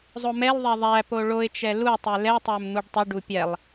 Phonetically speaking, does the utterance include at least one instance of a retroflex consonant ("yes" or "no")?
yes